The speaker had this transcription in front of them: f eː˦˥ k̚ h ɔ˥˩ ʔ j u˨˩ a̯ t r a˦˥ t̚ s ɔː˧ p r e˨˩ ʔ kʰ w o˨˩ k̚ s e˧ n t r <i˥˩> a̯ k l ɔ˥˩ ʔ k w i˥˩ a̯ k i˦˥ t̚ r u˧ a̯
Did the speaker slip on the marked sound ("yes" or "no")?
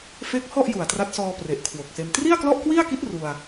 no